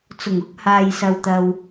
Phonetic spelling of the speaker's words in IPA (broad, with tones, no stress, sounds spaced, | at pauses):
t͡s ʊ˨˩ ŋ ʊ˥ k̚ h aː˨ j s ɐ˨ w t̪ ɐ˨ w